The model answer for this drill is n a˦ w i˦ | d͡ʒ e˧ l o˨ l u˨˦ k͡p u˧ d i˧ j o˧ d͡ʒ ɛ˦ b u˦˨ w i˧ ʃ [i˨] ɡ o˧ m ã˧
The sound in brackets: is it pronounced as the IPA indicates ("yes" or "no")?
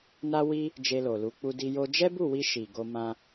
yes